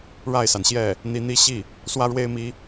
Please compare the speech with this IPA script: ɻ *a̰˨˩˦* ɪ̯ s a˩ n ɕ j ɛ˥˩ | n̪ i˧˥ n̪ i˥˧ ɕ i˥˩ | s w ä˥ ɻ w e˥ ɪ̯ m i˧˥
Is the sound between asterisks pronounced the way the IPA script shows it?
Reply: no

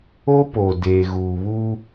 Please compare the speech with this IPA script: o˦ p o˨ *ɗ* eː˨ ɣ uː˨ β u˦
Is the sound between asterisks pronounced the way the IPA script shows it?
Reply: no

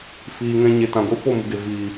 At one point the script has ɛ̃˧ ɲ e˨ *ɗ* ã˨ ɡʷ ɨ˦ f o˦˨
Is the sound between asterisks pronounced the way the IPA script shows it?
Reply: no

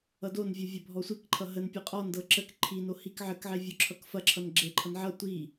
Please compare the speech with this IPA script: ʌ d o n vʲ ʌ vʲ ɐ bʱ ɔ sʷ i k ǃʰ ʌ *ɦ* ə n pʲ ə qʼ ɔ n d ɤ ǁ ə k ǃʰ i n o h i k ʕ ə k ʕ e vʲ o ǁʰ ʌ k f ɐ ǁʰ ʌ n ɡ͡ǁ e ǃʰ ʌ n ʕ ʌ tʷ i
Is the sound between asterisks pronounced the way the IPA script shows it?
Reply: yes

